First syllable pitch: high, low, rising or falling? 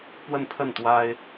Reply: falling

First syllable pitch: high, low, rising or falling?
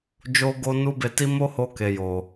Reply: high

